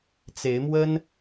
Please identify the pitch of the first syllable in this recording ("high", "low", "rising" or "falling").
rising